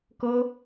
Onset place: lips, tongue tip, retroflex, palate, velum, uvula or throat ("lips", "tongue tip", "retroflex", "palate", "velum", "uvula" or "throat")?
velum